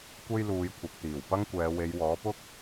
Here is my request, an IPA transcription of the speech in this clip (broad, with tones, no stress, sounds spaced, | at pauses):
kʷ e˥ j l uː˨˧ j kʷʰ ɐ˨ k̚ t̪ iː˨˩ w p ɐ˥ ŋ kʷ ɛː˨˧ w e˨˧ j w ɔː˨˥ p ʊ˥ k̚